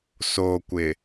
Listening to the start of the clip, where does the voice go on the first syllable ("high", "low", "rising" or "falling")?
low